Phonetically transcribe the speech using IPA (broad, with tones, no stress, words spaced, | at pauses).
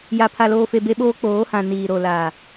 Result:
ja˨ pʰa˨loː˨fe˨ be˦ɓoː˦ k͡poː˨˦hã˨ niː˨ɾo˨laː˨